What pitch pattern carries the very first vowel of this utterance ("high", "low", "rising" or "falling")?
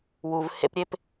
low